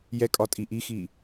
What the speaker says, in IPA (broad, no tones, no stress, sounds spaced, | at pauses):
j ɛ kʼ ɒ tʼ i ʔ i x i